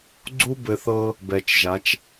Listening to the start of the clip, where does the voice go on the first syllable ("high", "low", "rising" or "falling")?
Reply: high